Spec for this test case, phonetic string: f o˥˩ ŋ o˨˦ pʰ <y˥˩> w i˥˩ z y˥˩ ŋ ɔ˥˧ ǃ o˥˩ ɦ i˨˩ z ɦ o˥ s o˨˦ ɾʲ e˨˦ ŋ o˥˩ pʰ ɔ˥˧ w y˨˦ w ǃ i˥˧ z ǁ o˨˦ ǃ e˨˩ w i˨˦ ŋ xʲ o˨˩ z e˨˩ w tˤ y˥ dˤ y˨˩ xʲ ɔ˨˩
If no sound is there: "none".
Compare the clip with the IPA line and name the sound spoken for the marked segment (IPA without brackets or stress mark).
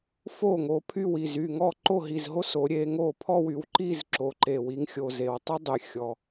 y˥˩